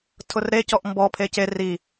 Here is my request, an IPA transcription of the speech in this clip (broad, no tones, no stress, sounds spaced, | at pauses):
tʰ ʊ r ɾ e c ɔ ʔ m b ɔ pʰ e c e r i